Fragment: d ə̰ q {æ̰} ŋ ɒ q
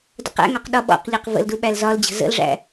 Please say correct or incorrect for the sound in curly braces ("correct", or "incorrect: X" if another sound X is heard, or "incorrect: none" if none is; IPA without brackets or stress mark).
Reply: correct